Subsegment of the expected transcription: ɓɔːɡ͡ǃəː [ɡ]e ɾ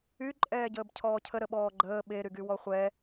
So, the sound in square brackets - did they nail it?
no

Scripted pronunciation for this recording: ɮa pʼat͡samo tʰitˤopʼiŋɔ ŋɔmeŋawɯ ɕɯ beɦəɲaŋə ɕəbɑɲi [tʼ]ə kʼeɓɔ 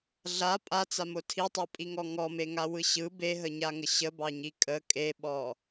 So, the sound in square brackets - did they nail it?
no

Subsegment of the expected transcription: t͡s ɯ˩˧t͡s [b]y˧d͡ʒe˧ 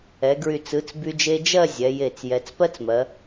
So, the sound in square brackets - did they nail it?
yes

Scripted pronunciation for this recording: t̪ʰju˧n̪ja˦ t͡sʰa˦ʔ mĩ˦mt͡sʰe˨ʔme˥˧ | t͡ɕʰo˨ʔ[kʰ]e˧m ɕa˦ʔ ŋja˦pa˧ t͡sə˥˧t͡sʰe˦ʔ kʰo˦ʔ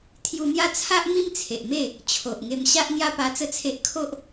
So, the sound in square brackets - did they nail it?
no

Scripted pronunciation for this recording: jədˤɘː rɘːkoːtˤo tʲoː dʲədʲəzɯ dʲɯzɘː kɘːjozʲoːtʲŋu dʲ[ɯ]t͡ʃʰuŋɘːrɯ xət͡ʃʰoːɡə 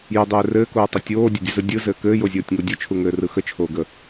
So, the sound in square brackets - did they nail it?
yes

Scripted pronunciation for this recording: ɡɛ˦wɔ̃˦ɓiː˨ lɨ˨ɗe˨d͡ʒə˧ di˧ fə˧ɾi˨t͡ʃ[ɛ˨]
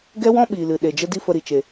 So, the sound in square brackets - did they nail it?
no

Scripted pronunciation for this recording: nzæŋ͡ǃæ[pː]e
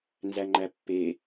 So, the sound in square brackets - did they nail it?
yes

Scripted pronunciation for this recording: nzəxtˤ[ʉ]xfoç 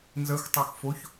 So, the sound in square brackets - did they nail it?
no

